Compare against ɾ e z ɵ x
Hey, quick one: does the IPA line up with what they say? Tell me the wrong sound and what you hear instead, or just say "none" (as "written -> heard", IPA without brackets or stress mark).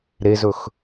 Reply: none